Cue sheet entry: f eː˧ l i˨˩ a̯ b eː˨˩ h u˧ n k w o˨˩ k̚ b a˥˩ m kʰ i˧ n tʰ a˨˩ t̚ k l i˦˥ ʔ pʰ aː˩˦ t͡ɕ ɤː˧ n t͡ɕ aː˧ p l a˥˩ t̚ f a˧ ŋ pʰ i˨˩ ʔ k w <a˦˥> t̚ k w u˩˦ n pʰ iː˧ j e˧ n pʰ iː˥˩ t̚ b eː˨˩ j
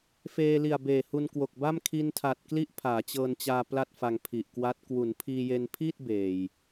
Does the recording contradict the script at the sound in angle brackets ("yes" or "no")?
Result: no